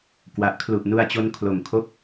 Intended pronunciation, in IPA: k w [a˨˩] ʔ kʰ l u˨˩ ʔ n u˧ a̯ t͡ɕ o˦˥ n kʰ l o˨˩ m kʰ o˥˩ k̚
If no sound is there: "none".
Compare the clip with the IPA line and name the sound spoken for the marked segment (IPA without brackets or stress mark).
a˨˩